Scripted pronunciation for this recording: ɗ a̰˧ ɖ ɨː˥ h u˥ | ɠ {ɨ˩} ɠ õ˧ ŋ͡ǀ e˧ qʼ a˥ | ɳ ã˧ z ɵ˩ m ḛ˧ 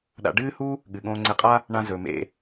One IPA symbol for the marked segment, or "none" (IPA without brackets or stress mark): ɨ˩